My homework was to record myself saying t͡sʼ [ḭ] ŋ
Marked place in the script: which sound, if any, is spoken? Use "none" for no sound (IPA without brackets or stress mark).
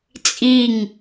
i